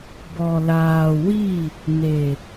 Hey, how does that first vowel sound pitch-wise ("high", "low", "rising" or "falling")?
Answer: low